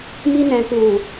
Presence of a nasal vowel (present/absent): present